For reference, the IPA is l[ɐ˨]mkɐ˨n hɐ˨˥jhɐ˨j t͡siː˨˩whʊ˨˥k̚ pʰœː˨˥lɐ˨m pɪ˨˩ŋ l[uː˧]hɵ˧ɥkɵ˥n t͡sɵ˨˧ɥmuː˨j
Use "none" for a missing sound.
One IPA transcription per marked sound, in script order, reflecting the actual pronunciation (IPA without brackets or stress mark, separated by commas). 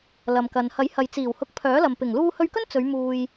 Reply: ɐ˨, uː˧